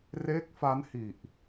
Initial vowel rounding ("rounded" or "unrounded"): unrounded